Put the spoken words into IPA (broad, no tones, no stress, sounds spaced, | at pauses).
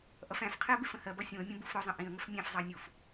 ʔ ʌ f æ̃ f qʰ ɪ ə̯ b ɪ f ə̃ h ɜ b ʌ sʲ ũ ə̯ mʲ ə̃ b u f ɾ ʊ zˤ ə̃ ʔ ĩ ə̯ ŋ ə f mʲ æ̃ f zˤ ɑ nʲ u f